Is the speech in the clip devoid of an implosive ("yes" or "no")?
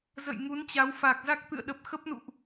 no